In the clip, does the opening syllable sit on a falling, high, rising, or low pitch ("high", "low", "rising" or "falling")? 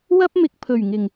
high